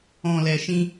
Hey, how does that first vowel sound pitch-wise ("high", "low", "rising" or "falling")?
low